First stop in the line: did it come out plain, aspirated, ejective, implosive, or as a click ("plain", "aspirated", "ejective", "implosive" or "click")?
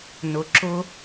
click